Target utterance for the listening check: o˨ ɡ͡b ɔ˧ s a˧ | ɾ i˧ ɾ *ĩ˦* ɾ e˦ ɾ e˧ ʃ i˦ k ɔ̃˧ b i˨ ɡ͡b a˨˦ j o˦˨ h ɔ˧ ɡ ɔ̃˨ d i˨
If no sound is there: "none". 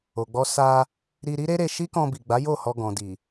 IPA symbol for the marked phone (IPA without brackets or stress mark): i˦